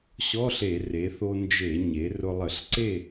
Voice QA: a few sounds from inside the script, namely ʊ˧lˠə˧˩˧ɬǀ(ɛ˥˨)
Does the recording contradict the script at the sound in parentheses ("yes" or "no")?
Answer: yes